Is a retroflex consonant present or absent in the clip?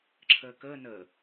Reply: absent